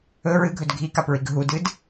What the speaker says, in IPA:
ɵ ɹɨɡʱɵd ɡʱikapɹiɡ ɦudɨd

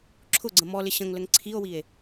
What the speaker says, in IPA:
ǁʰʊɡ͡ǀə̃ mɔlɪ ɕə̃ŋləŋ ǀʰio̯wie̯

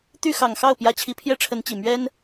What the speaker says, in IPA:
t̪y˥˩xɑ˨˩ŋxɑ˥˩ʊ̯ pjä˧˥t͡ɕʰi˧˥ pʰjɛ˥ʈ͡ʂʰə˧˥nt͡ɕi˨˩ mɥɛ˥n

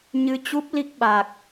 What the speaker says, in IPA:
ɲɨ˧t͡ɕu˦˥p̚ li˦˥k̚ɓa˨˩k̚

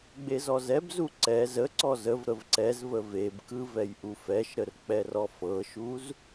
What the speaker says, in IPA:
ɡ͡bezɔzɛbzu ǀɛ zəǀɔ zəv ɾəvǀɛzvə vebkɯ vɛjʔufɛʃɾər k͡pɛrɔfɤʃuz

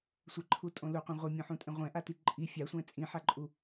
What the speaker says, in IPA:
sʷɛǃʰutʼõ luqʷẽ ʁʷɛmʲõħũtʼẽ ʁʷɛ̃ʔati ǃʼi fʲasʷɛ̃ t͡sʼĩħaǃʼu

